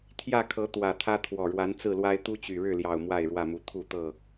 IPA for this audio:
t̪ʰ j ä˥˨ kʰ ɤ˨˦ t̪ w ä˨˩ t̪ʰ ä˦ t̪ʰ w ɔ˨˩ ɻ w a˨˦ n t͡s ɹ̩˥˨ l w a˦ ɪ̯ t̪ u˦ t͡ɕ y˨˩ ɻ ɻ̩˥˨ l j ɑ˨˩ ʊ̯ m w a˥˨ ɪ̯ ɻ w ä˥˨ m u˨˦ t̪ʰ u˥˨ t̪ ɤ˥˨

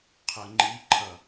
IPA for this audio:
qʰ ə ŋ͡ǃ i ǃʰ ʌ

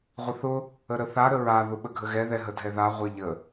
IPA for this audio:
ʁʷ ə θ ʊ | ə ɾ ə θ a ɾ ə ɹ a ð ʊ ɓ ə ɡʱ ə ɣ ɛ ð ɛ ɦ ə dʱ ɛ ð a ʁʷ ɛ ʎ ə

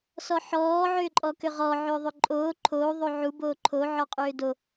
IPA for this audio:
s ɔ ħ ɔː ʕ ʏː ǃʼ ɔ k ʏ ʁ ɔ ʕ ʏː ðˤ ʏ ǃʼ oː ǃʰ oː ðˤ o ʕ u b oː ǃʰ o ʕ ɔ qʼ ʏː d o

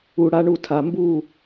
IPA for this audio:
u˨ ɽ a˦ ɳ u˦˨ tʰ a˧ m b u˦˨

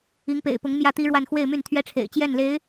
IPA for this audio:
i˧˥ ŋ p ḛ˨˩ ɪ̯ p ʊ˧˥ ŋ m j ä˥˩ t̪ i˥ ɻ w a˥˧ n x w e˥˧ ɪ̯ m y˥˩ n t̪ʰ ɥ ɛ˥ ʈ͡ʂʰ ḛ˨˩ ɪ̯ t͡ɕ j ɛ˥˩ n l e˧˥ ɪ̯

